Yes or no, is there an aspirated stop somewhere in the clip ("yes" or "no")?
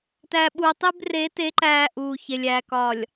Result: no